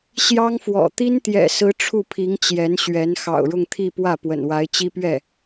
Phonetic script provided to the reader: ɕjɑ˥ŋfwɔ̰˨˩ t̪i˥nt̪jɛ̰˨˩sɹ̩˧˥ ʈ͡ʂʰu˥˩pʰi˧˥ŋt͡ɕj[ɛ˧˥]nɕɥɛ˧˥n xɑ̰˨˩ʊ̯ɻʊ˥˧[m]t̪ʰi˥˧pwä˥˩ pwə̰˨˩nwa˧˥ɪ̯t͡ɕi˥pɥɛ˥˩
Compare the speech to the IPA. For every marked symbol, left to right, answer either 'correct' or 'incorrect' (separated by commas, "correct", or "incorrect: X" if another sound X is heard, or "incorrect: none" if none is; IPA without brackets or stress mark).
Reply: correct, incorrect: ŋ